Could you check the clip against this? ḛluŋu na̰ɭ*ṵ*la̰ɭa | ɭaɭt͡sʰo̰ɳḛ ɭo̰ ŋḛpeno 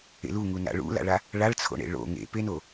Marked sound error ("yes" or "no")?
no